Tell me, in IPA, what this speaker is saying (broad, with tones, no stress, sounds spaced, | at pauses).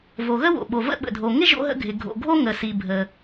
v o˩ ɣ ə˥ w o̰˩ ɓ o˩ v ə̰˥ ɓ ə̰˩ dʱ o˩ ŋ ɪ˥ ʒ o̰˥ ɦ ə̰˥ ɡʱ ɪ˩ ɡʱ o̰˩ ɡʱ o˥ ŋ ə˩ s i˩ bʱ ə˩